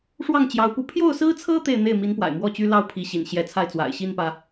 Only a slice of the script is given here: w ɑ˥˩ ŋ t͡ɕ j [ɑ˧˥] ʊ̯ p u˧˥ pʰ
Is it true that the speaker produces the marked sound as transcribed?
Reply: yes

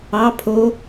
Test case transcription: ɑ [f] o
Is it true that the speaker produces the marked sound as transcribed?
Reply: no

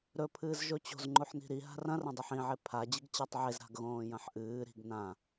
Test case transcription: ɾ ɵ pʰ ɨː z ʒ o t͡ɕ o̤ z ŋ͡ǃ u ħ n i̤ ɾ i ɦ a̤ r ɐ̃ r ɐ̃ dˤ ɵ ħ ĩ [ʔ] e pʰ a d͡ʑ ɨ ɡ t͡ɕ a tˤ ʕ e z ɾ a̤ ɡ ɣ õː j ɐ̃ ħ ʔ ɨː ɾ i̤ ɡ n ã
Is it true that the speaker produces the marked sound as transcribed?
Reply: no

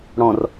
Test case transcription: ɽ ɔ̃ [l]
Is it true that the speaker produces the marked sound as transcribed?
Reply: no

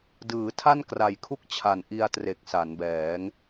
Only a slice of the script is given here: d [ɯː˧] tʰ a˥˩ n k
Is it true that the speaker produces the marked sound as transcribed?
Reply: no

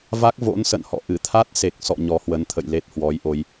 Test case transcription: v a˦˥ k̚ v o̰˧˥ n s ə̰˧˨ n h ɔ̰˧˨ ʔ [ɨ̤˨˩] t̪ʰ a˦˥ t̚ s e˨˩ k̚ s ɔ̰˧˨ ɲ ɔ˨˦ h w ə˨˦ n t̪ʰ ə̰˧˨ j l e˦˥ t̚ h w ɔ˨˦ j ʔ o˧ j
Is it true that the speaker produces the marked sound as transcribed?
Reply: no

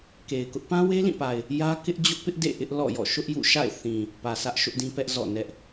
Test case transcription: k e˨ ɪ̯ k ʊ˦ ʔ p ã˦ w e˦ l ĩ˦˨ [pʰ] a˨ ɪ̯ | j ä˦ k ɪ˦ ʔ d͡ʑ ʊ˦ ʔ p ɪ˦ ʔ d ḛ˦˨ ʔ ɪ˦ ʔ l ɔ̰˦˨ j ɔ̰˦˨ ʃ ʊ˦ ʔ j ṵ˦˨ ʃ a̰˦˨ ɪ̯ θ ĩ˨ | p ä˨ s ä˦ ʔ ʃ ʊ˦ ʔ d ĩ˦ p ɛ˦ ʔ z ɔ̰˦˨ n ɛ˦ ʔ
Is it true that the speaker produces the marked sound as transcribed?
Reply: no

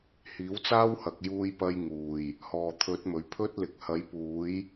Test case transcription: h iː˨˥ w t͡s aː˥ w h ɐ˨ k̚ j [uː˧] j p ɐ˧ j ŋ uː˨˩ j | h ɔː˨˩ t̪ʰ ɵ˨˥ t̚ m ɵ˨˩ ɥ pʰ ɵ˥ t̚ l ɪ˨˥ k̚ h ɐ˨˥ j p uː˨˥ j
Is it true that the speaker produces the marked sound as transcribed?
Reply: yes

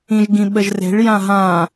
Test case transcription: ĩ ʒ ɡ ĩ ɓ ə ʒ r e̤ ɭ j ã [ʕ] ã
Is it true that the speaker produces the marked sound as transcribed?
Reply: no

